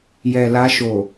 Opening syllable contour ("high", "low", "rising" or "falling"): low